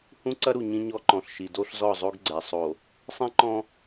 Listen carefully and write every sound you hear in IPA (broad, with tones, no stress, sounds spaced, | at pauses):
h ũ˦ ǀ ɐ˦ ɾ u˨ ɲ ĩ˦ ɲ ɔ˦ ǃ ɔ̃˨ ɬ ʃ i˨ d o˦ ɬ z ɔ˦˨ zˤ o˦ ɡ ɡ͡ǀ ɛ˨ sˤ o˨ | sˤ ĩ˦ ǃ ɔ̃˦